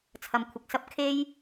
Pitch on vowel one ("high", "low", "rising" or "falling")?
low